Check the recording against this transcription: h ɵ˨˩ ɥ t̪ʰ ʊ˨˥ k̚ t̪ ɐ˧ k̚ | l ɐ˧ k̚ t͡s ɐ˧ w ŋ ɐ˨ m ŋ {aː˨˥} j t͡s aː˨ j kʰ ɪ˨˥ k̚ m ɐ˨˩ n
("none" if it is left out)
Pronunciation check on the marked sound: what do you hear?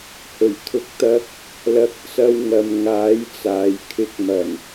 aː˨˥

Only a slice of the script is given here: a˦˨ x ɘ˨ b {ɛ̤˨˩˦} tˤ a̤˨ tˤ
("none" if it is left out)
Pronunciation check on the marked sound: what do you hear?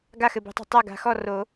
ɛ̤˨˩˦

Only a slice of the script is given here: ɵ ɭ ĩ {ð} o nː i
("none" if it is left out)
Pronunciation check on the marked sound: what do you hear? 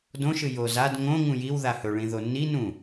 ð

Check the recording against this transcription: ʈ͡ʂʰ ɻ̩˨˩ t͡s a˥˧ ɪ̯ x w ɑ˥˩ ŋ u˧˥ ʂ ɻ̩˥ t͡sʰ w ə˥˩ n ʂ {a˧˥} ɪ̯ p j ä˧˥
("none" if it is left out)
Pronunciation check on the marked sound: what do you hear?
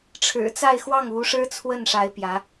a˧˥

